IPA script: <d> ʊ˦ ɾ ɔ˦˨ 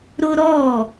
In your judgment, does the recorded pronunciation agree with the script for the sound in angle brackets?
no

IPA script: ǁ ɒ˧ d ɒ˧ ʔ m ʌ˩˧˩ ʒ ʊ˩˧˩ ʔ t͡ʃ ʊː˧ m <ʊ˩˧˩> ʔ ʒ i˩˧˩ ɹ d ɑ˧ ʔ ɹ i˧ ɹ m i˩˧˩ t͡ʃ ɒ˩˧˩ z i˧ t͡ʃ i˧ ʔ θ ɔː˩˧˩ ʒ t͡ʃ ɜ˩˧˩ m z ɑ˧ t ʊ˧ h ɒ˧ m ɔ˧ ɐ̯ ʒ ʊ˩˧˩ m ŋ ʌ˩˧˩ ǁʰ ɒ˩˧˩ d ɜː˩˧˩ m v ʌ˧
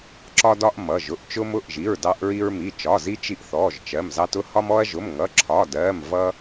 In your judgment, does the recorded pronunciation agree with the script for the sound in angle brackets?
yes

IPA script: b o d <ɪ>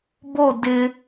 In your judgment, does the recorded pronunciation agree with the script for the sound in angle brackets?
yes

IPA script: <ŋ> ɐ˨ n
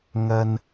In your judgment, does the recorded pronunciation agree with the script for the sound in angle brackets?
yes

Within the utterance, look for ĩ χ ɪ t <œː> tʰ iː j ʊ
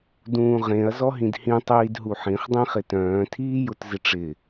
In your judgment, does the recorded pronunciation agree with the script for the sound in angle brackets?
no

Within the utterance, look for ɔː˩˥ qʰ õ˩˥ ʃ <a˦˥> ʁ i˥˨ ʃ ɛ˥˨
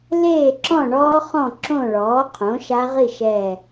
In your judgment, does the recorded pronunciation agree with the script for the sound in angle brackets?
yes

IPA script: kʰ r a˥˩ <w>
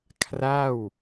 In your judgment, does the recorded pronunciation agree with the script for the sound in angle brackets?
yes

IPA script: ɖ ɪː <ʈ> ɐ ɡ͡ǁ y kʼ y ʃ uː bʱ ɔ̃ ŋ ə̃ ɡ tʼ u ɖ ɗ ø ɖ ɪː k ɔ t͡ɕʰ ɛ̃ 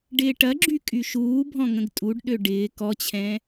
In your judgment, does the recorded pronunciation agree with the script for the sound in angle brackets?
yes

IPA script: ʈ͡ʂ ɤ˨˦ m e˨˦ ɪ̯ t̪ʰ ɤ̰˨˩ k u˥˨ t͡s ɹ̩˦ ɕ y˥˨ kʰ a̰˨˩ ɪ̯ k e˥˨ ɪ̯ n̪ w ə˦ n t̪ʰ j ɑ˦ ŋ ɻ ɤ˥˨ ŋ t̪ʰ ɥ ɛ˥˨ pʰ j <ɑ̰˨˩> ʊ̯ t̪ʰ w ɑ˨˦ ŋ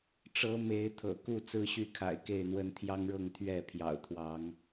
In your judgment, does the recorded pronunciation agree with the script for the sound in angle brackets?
yes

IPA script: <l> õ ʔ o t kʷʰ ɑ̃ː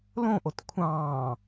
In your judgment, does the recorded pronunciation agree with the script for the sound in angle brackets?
yes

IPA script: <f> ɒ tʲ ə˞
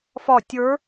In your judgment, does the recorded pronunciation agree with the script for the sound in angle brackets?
yes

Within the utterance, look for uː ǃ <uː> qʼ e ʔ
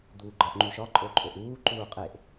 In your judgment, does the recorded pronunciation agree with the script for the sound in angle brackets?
yes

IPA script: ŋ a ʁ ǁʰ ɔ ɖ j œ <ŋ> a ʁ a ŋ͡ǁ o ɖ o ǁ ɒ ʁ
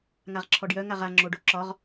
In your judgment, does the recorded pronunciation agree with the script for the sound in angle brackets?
yes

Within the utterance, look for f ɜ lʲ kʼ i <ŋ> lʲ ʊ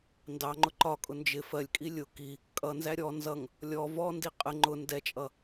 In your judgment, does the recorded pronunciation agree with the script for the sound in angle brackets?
no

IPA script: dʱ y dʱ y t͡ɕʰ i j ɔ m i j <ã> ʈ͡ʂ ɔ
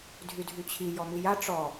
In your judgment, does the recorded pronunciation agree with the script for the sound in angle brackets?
no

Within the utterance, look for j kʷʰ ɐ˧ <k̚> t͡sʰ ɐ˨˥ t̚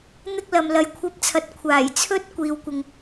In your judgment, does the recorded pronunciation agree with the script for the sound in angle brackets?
no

